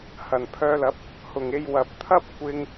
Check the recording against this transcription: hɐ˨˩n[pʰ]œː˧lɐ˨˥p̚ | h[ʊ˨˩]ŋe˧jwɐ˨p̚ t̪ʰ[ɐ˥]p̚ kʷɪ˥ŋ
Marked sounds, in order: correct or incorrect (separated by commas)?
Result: correct, correct, correct